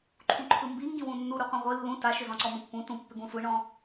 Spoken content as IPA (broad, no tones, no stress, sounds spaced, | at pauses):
ǃʰ ũ ǃʰ ɯ m b i ŋ ɡ ĩ w ũ nː u ɾ u qʷ ĩ ʁʷ ɨ lː ũ t a ʃ ʏ z ɔ̃ ǀ ɔ m ɔ̃ pː ũ t ũ pː ʏ ɡ ũ sʷ i ɳ ɔ̃